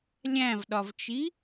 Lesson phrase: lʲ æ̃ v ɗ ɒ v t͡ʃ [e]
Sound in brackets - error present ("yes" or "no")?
yes